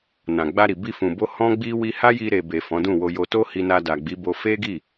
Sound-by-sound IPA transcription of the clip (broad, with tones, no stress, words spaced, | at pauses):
nã˨ɡ͡ba˧ɾi˨ bi˧fũ˨bo˧ hɔ̃˦ɡ͡bi˦ wi˧ha˦ji˧ ɾe˨be˨ fɔ̃˨˦dũ˦˨wo˧jo˧ to˦hi˧na˧ da˨ɡ͡bi˨˦bo˧ fe˦ɡi˦˨